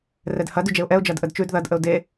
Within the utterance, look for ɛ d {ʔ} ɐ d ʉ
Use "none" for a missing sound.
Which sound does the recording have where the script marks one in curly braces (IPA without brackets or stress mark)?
h